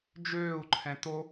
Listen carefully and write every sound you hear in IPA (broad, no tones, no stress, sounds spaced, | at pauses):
d͡ʒ øː u̯ ǃʰ ɛ̃ t o